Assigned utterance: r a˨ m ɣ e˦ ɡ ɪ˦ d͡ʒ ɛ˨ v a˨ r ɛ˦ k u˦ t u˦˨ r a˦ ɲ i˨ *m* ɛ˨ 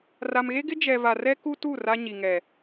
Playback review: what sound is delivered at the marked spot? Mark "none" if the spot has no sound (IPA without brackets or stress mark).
ŋ